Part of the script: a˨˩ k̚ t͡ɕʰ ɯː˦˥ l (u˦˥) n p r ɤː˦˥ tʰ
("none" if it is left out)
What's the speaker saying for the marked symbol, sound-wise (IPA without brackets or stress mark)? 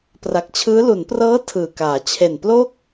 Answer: u˩˦